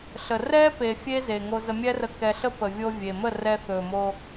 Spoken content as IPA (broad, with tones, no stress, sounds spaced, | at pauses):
ɬ ə˨ r ɛ˦ p e˨ fʲ e˦ z e˨ ŋ o˧ z ə˧ mʲ ɛ˦ r ə˧ k ɛ˧ ɬ ə˦ p ə˨ vʲ o˧ vʲ e˨ m ə˦˨ r ɛ˧ θ ɵ˨ m o˧